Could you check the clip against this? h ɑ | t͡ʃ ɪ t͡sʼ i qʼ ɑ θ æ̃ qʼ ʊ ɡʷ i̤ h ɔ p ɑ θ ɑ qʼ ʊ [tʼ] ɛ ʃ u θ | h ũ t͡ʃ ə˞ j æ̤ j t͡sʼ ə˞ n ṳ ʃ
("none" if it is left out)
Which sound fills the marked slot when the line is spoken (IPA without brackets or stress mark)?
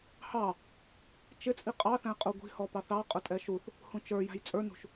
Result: tʼ